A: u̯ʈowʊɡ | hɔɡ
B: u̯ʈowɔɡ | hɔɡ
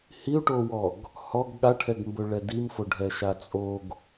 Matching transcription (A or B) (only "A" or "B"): B